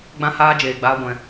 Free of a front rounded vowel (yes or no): yes